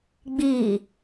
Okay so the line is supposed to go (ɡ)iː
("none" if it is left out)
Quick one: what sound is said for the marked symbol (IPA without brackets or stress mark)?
ɡ͡b